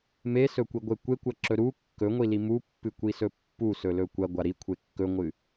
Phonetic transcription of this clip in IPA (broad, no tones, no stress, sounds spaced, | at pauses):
m e s ɵ kʷ i ɡʷ e kʷ e kʷ ɐ ǁ ɵ ɾ u kː ɵ ŋʷ i l i m u pː ɨ kʷ i s ɵ pː u s ɵ l ɵ kʷ ɐ ɡʷ a ɾ i kʷʰ e kː ɵ ŋʷ ɨ